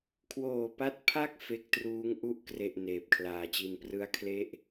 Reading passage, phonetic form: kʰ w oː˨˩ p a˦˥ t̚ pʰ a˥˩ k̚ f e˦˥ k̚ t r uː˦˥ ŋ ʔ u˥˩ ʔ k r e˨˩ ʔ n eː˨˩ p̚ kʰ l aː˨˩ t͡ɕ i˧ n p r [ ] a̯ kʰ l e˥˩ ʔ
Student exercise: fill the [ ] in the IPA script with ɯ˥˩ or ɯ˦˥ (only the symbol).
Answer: ɯ˦˥